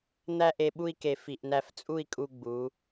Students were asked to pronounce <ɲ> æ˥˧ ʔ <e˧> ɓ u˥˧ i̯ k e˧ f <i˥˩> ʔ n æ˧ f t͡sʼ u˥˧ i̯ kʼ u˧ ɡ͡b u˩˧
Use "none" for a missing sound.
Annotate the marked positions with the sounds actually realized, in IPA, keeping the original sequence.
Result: n̪, e˧, i˨˩

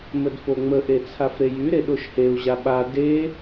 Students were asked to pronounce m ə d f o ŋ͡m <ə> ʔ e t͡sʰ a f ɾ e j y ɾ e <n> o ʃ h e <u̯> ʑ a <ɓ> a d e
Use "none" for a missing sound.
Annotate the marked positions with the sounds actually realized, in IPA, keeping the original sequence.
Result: ə, ɗ, u̯, ɓ

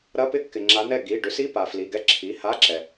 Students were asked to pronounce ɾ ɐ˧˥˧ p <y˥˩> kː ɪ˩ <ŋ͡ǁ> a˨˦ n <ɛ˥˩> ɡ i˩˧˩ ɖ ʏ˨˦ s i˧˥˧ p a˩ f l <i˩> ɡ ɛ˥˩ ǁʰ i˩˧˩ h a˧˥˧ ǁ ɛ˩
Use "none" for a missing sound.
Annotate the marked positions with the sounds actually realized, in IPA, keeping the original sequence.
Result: ɪ˥˩, ŋ͡ǁ, ɛ˥˩, i˩˧˩

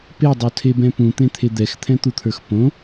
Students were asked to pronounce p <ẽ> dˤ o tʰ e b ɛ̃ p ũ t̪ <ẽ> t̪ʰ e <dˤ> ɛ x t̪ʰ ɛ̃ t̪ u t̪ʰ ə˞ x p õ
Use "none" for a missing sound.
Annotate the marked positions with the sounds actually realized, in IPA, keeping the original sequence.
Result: e, ẽ, d̪

